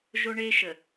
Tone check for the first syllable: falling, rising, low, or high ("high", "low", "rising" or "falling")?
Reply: high